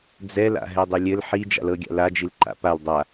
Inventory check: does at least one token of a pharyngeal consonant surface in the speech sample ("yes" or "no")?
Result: yes